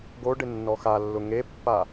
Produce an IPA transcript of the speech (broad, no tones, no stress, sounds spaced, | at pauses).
ɡ o ɖ ɪ nː ɔ x a lː ʊ ŋ e pː a